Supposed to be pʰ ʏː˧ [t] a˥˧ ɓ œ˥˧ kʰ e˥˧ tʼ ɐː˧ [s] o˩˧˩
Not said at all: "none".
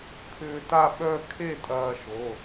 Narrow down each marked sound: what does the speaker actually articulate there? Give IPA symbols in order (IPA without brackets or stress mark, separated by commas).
t, ʃ